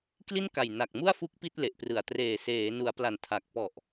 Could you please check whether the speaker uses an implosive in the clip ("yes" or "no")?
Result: no